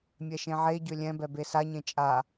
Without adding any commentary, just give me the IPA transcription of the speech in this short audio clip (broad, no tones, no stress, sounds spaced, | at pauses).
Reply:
mʲ ɛ ʃ ẽ ʕ e ɟ ø lʲ ɛ̃ b ɛ b e s a ɲ ẽ t͡ʃʼ a